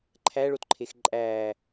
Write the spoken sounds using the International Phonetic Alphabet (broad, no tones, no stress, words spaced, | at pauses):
ǃʰæɭotǃʰex ǃʼæ